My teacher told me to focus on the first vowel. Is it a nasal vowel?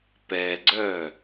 no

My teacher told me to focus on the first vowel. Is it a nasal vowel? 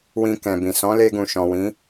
yes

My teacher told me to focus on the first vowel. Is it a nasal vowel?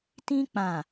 yes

